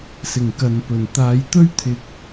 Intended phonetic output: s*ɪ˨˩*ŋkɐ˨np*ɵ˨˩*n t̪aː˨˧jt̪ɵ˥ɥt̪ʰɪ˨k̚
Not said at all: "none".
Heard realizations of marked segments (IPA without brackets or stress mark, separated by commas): ɪ˨˩, ɵ˨˩